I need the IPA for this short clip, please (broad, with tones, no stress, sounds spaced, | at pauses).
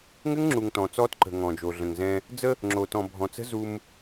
ŋ ɘ˦ ŋ ŋ͡ǁ u˨ ŋ t ɔ̃˨ t͡s ɔː˦ t ǃ ə̤˨ ŋ ɔ̃˨ d͡ʒ o˨ ɮ ə̃˨ ŋ z ɛ̃˦ | d͡z ə˦ | ŋ͡ǁ o˨ t ɔ̃˨ bʱ ɔ̃˨ t͡s ə̤˦ z u˦ m